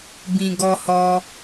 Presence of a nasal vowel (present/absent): present